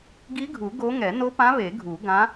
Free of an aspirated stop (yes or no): yes